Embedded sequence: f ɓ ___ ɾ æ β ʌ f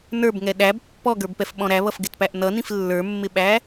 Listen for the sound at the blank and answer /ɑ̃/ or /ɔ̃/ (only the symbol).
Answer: ɔ̃